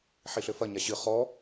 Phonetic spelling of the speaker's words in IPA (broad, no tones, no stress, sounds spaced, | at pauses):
ħ i ɬ ɘ f ɐ ɲ a ɕ ɨ χ ɔ